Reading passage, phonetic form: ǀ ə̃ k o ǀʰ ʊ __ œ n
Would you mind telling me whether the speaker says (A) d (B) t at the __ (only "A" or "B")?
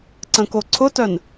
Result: B